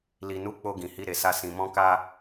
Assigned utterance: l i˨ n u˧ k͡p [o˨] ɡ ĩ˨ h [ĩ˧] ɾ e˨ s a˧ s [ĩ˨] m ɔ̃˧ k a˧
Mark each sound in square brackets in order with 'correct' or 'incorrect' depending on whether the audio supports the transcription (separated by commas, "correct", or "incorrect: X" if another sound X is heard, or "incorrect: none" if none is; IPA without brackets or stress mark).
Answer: incorrect: o˧, incorrect: i˧, correct